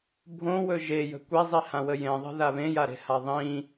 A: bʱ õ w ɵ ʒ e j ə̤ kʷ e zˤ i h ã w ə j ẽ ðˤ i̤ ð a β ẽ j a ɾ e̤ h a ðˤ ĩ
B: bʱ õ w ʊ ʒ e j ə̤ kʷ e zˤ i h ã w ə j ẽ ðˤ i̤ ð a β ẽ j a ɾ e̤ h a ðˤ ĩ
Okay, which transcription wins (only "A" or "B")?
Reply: A